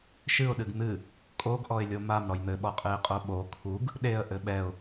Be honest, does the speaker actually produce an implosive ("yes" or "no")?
yes